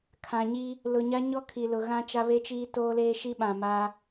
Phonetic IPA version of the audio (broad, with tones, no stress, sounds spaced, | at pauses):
kʰ ã˨ ɲ i˦ | l ʊ˨ ɲ a˦ ɲ ɔ˦ kʰ i˨ l ʊ˨ ɣ ã˦ t͡ʃ a˦ β e˦ t͡ʃ iː˦ t oː˦ l eː˦ ʃ i˦ ɓ ã˨ m a˦